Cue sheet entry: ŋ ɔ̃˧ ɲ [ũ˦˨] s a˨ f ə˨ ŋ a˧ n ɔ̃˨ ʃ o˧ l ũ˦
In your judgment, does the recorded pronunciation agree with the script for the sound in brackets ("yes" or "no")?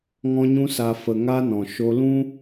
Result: no